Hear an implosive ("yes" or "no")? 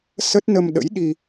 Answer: yes